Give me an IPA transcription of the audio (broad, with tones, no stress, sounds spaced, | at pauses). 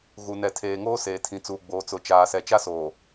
ɣ u˨ n ɛ˨ tʰ eː˨ ŋ oː˦ s eː˨ tʰ ĩ˨ t͡s uː˨ ɡ͡b oː˨ t͡s ʊ˨ t͡ʃ aː˨ s ɛ˨ t͡ʃ a˦ s oː˨